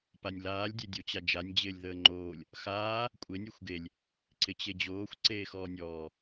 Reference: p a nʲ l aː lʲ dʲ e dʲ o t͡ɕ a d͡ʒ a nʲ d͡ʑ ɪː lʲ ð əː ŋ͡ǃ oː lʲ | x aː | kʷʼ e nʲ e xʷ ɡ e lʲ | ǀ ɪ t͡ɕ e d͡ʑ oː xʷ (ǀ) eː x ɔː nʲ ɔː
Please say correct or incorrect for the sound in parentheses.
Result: correct